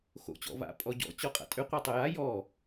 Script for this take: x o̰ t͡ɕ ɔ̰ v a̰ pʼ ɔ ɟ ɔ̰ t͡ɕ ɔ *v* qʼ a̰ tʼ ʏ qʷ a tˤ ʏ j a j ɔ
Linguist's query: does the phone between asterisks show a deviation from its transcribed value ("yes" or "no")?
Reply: yes